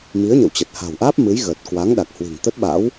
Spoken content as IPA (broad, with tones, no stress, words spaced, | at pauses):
mi˨˦ə̯ɲə̰˧˨wt͡ɕə˨˩t̚ ha̤˨˩wʔaː˦˥p̚ mɨ˨˦jɣəː˨˩t̚ kwa˨˦ŋɗa˨˩k̚hwi̤˨˩ŋ t̪ə˦˥t̚ɓa̰˧˥w